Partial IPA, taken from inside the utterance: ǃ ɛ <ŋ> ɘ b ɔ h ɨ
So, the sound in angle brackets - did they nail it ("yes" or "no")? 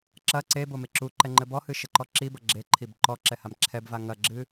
no